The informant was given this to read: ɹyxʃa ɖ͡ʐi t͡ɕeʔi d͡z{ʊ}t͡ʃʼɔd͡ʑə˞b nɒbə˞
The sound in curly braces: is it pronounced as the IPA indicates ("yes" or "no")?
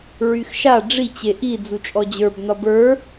no